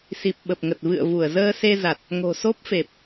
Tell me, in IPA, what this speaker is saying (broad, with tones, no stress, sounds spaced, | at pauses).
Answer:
s i˨˩ p̚ ɓ ə˨˩ p̚ ŋ ə˨˩ t̚ v ɨ̰˧˨ ə̯ v u˧˩ ə̯ z əː˧ s e˧ z a˨˩ t̚ | ŋ o̤˨˩ s o˦˥ p̚ f e˨˩ p̚